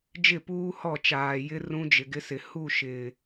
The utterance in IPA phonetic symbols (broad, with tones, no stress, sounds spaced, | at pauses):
d͡ʒ ɪ˦˨ p uː˦ h ɔ˦˨ t͡ʃ aː˨ j ɪ˦ r ũ˦ d͡ʒ ɪ˨ ɡ ɪ˦ s ɪ˨ h u˦˨ ʃ ɪ˨